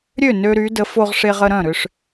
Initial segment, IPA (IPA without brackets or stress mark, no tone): ɾʲ